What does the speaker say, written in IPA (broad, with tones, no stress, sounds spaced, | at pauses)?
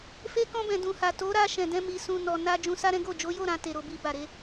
f e˧ k ɔ̃˧ b ɛ̃˨ d ũ˨ h a˨ t o˨˦ ɾ a˧ ʃ ɛ̃˨ d ɛ̃˧ m i˨ s ũ˨ n ɔ˨ n a˧ d͡ʒ ũ˧ s a˦ ɾ ɛ̃˦ ɡ o˦˨ d͡ʒ o˨˦ j o˦˨ ɾ ã˧ t e˨ ɾ o˨ b i˨ b a˨ ɾ e˧